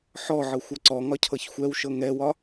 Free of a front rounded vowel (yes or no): yes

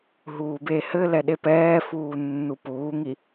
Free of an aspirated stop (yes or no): yes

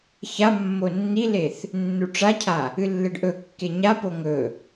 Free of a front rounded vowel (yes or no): yes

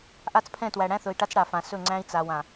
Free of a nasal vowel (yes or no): no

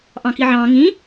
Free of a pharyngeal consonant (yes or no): no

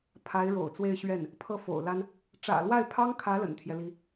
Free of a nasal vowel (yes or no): yes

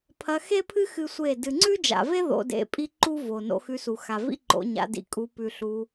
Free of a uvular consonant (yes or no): yes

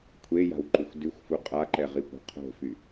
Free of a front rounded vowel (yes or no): no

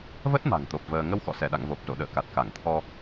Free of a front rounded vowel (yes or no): yes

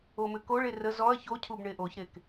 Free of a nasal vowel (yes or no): yes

